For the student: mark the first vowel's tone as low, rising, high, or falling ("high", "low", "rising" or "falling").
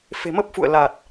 low